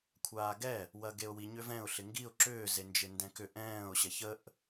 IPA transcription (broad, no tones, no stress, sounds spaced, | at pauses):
kʷʰ aː ɡ ɛ | w ɐ ɡ e ʊ̯ w i ɲ ʏ v ɛ̃ ʊ̯ ɬ ɪ ŋ ɡ i ʊ̯ ǁ ʏː z e n d͡ʒ ɪ n d ɛ̃ k ʏ ʔ ɛ̃ː ʊ̯ ɕ ɛ ç ə ʔ